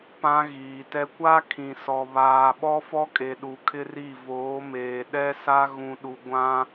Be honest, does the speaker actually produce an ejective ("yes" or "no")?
yes